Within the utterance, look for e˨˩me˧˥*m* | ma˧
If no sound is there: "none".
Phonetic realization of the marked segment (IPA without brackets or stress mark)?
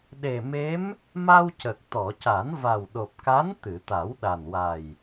m